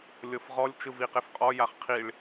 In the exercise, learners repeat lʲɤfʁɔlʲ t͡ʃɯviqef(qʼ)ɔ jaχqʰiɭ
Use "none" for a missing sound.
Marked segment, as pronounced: qʼ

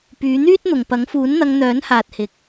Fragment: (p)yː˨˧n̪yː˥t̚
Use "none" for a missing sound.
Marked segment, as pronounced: p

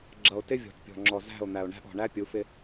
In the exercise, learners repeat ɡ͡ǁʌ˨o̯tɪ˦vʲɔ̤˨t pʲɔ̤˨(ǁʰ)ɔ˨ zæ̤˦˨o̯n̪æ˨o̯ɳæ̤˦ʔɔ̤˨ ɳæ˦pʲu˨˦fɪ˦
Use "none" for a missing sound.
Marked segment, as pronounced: ŋ͡ǁ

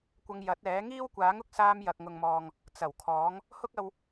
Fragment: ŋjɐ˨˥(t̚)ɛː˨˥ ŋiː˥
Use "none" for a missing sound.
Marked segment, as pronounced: t̚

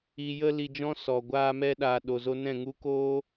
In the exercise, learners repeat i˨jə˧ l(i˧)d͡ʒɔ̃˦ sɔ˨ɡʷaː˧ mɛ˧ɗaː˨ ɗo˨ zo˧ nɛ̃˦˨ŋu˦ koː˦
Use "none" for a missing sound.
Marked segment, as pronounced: i˧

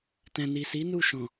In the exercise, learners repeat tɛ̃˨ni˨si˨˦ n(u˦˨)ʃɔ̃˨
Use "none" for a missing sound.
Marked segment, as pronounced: u˦˨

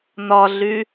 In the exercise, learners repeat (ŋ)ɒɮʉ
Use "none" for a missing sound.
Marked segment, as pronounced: n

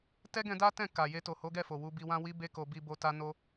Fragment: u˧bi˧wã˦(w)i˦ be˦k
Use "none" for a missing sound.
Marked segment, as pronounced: w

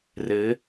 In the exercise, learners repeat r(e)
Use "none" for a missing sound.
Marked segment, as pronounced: ɘ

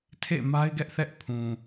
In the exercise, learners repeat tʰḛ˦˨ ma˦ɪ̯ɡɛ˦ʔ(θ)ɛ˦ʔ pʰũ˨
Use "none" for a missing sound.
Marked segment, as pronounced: θ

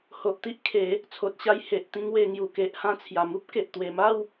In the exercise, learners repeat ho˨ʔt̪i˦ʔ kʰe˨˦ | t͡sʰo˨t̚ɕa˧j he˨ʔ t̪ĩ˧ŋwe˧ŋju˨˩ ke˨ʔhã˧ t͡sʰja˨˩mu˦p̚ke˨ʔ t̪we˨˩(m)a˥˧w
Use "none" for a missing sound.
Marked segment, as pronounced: m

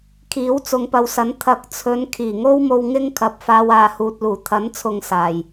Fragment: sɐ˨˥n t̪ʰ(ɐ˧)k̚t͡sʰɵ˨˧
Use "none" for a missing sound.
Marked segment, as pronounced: ɐ˨˥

